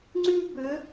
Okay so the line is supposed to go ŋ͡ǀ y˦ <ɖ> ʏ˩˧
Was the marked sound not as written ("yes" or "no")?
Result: yes